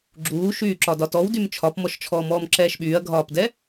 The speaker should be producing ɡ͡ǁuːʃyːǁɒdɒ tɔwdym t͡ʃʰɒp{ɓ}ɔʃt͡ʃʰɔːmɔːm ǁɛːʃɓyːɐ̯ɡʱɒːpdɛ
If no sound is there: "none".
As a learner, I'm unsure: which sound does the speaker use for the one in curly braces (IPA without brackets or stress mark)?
m